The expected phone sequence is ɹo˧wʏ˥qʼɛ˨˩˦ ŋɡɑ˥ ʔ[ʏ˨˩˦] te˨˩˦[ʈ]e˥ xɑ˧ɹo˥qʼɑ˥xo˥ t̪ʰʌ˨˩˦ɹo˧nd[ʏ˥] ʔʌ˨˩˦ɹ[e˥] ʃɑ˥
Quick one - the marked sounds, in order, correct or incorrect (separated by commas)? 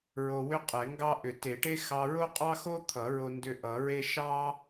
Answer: correct, correct, incorrect, correct